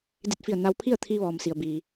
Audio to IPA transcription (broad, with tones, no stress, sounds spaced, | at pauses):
d i˧˩ t̚ f i˧˩ ə̯ n a˧ w pʰ i˥˨ ə̯ t̪ʰ i˧ ʋ ɔː˩ m s i˩ ə̯ b iː˩